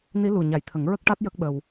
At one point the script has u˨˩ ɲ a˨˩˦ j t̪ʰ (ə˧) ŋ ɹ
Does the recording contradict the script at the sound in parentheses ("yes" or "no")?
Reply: yes